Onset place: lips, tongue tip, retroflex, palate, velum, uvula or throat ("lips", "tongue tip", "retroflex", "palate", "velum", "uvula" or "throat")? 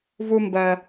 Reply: lips